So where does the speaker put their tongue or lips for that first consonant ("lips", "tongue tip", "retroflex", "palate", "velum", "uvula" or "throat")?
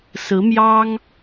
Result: tongue tip